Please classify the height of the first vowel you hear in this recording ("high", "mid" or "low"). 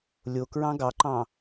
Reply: mid